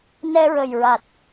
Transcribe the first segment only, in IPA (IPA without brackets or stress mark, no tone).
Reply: n